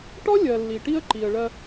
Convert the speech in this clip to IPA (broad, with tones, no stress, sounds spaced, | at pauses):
ʈ ɔ˦ lʲ ɜ˨ lː i˨ ʈ i˦ ə̯ ǃ i˨ ə̯ ɭ ɜ˦